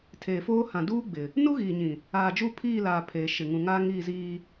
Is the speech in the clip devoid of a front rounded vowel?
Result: yes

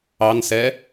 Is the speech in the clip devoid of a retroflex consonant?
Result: yes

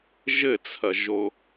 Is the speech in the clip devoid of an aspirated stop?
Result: no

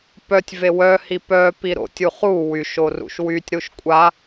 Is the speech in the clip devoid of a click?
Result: yes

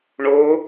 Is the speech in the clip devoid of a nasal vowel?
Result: yes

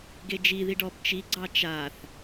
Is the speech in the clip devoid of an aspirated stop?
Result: yes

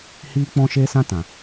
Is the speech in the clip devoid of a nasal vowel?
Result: no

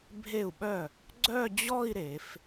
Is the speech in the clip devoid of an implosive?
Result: no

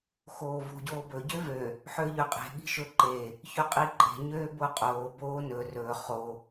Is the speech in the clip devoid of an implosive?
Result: no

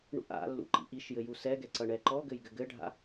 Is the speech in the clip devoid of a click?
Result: no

